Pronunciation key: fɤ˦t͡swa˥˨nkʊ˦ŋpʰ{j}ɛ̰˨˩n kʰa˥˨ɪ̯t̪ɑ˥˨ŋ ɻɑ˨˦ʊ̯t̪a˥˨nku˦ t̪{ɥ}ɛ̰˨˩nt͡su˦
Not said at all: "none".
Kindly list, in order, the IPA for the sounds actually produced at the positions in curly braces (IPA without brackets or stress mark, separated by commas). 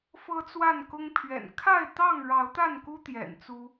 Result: ɥ, j